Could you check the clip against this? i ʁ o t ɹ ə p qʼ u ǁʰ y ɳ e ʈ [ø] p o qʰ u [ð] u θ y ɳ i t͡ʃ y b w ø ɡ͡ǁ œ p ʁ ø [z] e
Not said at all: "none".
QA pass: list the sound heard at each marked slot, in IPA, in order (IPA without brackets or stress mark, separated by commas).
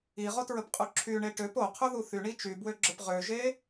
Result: ø, ð, ʒ